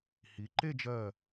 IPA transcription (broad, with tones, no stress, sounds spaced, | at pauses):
h i˩˧ ǃ e˥˧ d͡ʒ ɜ˧˩